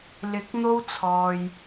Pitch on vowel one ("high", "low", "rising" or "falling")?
rising